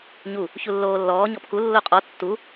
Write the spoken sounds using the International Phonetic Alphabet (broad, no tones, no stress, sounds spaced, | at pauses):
ɲ u | ç u lː oː lː ɔː ɲ ɔ p k u lː o qʼ ɔ tː u